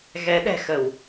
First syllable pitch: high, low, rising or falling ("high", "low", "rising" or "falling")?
rising